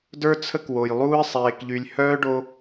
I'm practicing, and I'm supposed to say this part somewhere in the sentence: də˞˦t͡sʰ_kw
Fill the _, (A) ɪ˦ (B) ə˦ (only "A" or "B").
B